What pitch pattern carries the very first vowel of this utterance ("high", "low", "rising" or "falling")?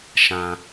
low